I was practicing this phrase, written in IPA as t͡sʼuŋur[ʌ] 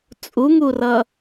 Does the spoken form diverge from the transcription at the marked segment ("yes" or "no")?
no